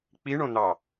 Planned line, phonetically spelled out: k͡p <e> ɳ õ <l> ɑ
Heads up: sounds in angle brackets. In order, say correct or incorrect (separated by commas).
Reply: incorrect, incorrect